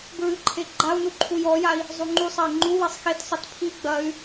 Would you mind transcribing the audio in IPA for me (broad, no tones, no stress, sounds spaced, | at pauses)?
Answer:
b ɹ ɨ ǃʰ e ɡ͡ǃ a u̯ n u ǃʰ u j ɔ j a i̯ | zˤ u ŋ͡ǃ u sˤ ɐ i̯ ŋ͡ǃ u w e sˤ x e t sˤ ɐ t pʰ i ɡ͡b ɐ y̯